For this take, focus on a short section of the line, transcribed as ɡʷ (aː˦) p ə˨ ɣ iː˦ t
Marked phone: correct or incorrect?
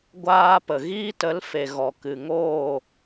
correct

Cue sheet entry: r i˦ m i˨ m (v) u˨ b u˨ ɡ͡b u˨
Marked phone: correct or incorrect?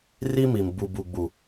incorrect: b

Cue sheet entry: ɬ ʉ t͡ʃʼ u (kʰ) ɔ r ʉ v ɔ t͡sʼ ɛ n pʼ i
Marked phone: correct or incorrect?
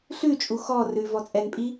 incorrect: x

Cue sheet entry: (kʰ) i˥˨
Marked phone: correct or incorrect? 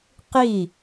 incorrect: q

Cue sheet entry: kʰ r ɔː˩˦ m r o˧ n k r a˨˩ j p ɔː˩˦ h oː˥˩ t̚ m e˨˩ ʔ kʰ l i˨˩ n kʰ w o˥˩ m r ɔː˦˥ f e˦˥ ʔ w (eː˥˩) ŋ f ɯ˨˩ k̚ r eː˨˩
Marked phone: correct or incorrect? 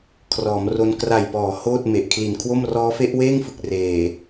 correct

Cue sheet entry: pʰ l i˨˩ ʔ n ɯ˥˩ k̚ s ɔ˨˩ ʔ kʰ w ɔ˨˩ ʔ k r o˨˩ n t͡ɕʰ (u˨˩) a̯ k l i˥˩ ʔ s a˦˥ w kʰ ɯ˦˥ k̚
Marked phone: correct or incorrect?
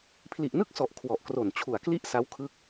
correct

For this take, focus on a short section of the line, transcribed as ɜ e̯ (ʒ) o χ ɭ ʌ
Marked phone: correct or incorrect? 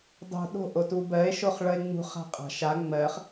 incorrect: ʃ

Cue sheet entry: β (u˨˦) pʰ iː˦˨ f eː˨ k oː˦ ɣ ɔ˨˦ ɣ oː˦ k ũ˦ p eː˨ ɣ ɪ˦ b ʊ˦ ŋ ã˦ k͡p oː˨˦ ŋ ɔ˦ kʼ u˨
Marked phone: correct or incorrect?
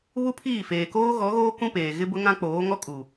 incorrect: u˦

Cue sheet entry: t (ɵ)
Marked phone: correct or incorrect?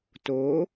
incorrect: o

